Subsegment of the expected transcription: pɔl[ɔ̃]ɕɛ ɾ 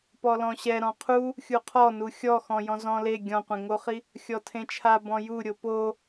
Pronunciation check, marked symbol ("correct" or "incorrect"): correct